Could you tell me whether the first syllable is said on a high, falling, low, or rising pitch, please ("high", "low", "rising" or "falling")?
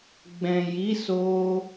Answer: low